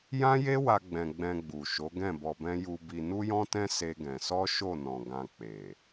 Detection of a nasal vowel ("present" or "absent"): present